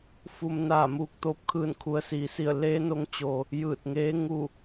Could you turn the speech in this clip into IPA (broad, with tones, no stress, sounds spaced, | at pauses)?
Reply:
f u˧ m n aː˧˩ m uː˧ k̚ t̪ oː˧ p̚ kʰ ɯː˧˩ n kʰ u˩ ə̯ s iː˩ s i˧˩ ə̯ l eː˧˥ n o˧ ŋ t͡ɕ o˩ | j ɯː˧˩ t̚ ŋ eː˧˥ ŋ u˧˩